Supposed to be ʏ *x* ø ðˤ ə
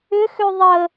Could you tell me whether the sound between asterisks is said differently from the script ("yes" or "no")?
no